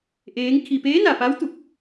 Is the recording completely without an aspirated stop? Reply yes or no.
no